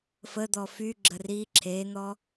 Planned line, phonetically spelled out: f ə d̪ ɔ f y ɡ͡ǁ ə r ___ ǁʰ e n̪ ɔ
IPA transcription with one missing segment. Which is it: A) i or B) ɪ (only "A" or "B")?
A